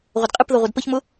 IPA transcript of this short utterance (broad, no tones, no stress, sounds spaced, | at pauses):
ʁʷ ə d qʼ ɨ p ð ʌ ʁʷ ʌ d p ə ç m ʊ